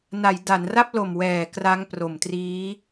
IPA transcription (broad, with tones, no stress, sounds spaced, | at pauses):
n a˩˦ j d a˩˦ n r a˥˩ p̚ l o˨˩ m w ɛː˨˩ k r a˦˥ ŋ p r o˨˩ m t r iː˦˥